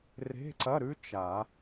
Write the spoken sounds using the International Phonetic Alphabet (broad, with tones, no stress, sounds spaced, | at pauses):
r e̤˧˥˧ ǀ ɐ˧˥˧ ɾ ʉ˦˥ t͡ʃ a˨˩˦